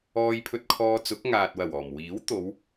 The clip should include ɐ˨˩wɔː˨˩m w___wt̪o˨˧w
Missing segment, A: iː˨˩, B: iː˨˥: B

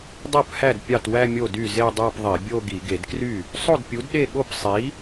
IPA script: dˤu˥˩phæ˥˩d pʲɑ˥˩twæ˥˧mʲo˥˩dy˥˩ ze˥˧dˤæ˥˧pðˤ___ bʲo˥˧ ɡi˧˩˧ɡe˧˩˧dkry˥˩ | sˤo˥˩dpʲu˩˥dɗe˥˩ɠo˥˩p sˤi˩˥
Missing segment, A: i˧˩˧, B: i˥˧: A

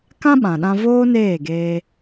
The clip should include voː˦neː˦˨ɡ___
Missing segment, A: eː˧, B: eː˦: A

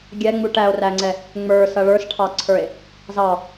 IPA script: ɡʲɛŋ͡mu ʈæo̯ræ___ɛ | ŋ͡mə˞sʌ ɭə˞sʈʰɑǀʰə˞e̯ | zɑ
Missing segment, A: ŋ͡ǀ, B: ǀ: A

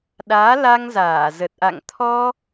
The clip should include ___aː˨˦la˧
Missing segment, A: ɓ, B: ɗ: B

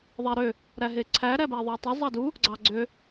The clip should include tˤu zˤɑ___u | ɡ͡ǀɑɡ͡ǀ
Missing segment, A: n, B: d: B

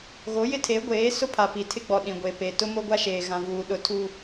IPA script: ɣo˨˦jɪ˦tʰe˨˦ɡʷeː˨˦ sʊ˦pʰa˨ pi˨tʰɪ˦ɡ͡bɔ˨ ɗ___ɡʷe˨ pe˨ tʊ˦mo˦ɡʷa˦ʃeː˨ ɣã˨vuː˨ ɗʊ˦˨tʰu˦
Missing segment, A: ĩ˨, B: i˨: A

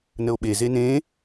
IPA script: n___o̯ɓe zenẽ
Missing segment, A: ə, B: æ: A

